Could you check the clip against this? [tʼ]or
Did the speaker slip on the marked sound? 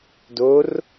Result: yes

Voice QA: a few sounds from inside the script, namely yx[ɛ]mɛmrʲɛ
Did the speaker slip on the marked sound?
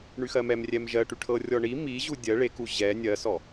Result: yes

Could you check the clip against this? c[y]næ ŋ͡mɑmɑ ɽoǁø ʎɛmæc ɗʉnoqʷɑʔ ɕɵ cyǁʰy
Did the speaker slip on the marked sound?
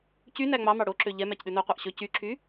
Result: no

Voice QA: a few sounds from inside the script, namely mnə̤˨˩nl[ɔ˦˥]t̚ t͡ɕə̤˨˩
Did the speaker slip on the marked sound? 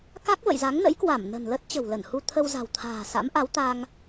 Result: yes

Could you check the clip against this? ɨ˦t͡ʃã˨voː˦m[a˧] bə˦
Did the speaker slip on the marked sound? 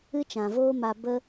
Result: no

